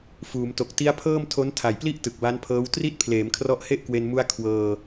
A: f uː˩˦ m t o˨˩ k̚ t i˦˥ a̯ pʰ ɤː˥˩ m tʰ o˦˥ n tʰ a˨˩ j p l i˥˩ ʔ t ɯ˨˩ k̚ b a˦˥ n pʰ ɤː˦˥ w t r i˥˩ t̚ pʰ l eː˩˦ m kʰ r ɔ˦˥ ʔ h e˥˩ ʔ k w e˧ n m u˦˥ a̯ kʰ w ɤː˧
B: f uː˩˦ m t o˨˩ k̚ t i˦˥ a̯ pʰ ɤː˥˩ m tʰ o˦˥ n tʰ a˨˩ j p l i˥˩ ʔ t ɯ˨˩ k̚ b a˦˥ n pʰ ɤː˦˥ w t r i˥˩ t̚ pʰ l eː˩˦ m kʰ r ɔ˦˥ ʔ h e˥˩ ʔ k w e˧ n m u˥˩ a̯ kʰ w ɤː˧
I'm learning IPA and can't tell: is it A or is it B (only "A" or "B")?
A